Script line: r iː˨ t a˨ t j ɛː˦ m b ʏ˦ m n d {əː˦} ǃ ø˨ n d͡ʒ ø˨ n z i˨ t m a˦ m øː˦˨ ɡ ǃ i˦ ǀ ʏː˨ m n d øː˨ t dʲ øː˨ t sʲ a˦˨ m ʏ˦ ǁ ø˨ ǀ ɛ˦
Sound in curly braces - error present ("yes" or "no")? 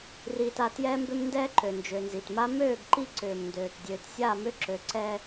yes